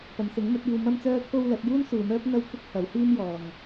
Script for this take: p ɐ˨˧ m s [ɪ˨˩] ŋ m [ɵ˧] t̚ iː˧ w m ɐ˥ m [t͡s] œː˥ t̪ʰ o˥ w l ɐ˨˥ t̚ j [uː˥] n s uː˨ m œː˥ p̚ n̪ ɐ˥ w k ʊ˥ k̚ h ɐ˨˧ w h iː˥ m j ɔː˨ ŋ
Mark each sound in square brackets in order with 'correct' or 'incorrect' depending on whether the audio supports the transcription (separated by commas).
incorrect, incorrect, correct, correct